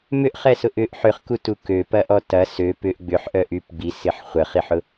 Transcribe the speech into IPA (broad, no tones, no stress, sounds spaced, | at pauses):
m ʏ ʔ χ ɛ s ʊ ʔ ʏ ʔ ħ ʏ χ k u t u k ø p ɐ ʔ ɔ t ɐ s ø p ʏ ʔ ɡ͡b ʏ ħ ʔ œ ʔ y p ɡ͡b i s ɪ ħ χʷ ə χ i ħ ʊ